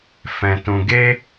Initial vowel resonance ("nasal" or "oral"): nasal